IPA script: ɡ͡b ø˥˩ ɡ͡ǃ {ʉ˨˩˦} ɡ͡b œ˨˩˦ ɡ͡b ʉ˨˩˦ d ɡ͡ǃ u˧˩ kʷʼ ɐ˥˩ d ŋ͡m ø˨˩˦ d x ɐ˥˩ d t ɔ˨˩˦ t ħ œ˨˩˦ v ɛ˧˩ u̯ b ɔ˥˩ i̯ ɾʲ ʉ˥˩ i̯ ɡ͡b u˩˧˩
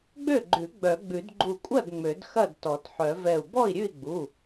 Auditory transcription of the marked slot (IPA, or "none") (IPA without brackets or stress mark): ʉ˨˩˦